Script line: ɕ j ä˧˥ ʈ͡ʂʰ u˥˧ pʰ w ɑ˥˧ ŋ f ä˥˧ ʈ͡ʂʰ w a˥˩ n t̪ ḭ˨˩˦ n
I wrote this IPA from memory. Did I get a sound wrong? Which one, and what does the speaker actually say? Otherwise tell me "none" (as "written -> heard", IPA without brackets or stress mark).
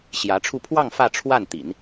none